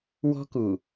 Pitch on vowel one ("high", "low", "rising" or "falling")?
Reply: high